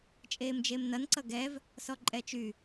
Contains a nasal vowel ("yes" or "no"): no